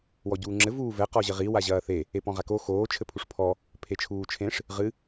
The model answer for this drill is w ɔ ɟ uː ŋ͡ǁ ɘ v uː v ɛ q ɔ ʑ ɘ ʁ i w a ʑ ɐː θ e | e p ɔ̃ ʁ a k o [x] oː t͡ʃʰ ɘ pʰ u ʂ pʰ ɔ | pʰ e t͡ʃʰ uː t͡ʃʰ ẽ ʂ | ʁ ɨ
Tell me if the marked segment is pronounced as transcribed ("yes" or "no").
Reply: yes